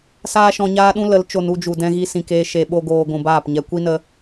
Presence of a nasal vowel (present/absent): present